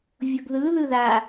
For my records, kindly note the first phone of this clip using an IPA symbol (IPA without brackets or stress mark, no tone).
vʲ